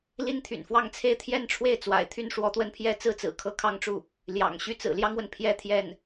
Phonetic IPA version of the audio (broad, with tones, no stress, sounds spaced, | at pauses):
l i˥ n t̪ʰ y̰˨˩ n f w ɑ˥˧ ŋ t͡sʰ e˥˧ ɪ̯ t̪ʰ j ɛ˥˧ n ʈ͡ʂʰ w e˥˩ ɪ̯ t͡s w a̰˨˩ ɪ̯ t̪ʰ y˥˩ n ʂ w ɔ˧˥ t̪ w ə˥˧ n pʰ j ɛ˥˩ t͡s ɹ̩˥ t͡s ɹ̩˨˩ kʰ ɤ˧˥ kʰ ɑ˥˧ ŋ ʈ͡ʂ u˥˩ | l j ɑ̰˨˩ ŋ ɕ y˥˩ t͡s ɹ̩˨˩ l j ɑ˥ ŋ w ə˨ n pʰ j ɛ˥˧ t̪ʰ j ɛ˥˩ n